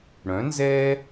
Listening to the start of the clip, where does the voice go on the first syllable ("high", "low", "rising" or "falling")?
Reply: rising